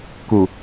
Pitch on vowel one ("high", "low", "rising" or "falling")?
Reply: low